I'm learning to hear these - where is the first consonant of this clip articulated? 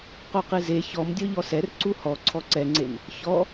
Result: uvula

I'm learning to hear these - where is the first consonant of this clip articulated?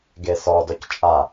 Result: velum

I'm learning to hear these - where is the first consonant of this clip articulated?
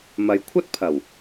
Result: lips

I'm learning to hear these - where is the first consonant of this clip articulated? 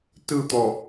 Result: tongue tip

